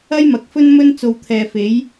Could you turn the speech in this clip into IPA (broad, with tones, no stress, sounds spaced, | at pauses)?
ɐ˥ j m ɐ˨ k̚ f ɵ˥ n m ɵ˥ n t͡s o˧ w t̪ʰ ɛː˨ f e˨˥ j